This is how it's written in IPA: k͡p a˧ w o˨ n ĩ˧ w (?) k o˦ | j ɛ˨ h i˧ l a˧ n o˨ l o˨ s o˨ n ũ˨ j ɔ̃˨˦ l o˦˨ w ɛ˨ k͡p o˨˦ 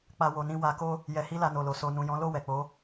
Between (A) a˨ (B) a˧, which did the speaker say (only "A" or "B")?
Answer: B